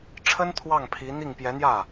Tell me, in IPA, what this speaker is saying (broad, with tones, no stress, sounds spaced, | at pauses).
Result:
ʈ͡ʂʰ ə˥ n t̪ʰ w ɑ˥˩ ŋ pʰ i˧˥ n̪ i˥˩ ŋ p j ɛ˧˥ n̪ j ä˥˩